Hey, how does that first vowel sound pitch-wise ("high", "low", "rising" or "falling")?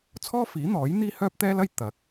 high